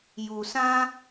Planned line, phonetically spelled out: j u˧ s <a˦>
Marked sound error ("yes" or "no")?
yes